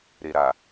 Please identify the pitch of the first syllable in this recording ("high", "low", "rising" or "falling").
low